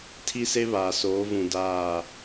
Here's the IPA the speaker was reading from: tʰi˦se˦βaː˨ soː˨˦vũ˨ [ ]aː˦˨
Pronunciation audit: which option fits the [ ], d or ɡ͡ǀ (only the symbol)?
d